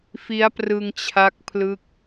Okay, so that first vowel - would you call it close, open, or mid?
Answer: close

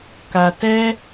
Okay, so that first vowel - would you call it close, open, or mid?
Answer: open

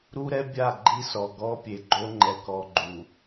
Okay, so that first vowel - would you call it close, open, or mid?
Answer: close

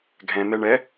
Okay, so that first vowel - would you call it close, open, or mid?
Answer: mid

